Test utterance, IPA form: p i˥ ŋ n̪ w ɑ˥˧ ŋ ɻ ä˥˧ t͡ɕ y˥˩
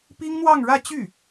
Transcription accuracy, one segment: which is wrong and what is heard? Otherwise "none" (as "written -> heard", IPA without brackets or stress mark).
none